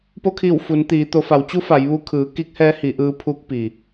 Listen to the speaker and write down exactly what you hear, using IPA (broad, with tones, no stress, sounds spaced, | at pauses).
p o˧ kʰ iː˧˩ w f u˩˧ n t̪ iː˩˧ t̪ o˩˧ f a˩˧ w t͡ɕ u˧˥ f a˩˧ j ʋ u˧ kʰ ɯː˩˧ k i˧˥ k̚ h ɛː˧˥ h i˩˧ ʔ ɯː˧ pʰ u˧˥ k̚ p i˩